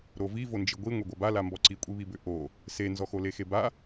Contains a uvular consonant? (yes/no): no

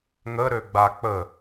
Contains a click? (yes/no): no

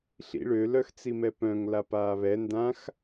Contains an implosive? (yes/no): no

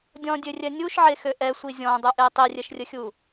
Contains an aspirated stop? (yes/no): no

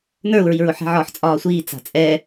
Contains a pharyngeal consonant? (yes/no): yes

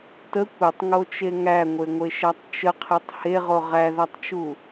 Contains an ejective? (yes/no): no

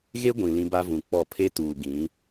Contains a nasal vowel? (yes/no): yes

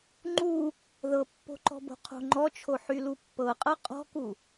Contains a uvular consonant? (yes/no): yes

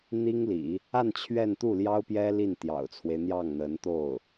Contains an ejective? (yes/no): no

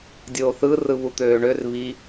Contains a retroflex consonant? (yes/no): yes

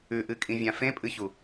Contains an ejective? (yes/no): yes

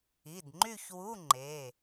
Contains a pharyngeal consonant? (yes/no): no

